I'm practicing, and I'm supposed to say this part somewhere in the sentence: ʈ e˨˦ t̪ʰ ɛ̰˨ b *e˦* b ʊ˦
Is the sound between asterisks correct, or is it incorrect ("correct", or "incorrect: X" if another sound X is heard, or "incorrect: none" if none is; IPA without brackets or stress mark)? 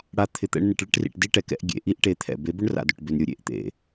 incorrect: e˨˦